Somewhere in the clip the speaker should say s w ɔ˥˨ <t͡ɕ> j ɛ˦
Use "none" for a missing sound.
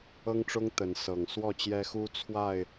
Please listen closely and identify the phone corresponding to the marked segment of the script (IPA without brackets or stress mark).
t͡ɕ